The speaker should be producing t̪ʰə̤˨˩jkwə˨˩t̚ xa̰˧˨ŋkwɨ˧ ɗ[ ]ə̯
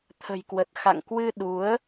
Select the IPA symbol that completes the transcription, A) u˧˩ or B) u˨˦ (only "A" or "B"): B